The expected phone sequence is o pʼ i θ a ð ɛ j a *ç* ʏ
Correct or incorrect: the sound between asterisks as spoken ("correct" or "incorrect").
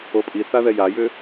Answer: incorrect